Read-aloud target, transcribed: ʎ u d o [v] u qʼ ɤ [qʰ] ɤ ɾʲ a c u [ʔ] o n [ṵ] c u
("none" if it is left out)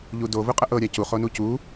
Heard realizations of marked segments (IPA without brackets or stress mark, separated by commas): v, ʔ, χ, u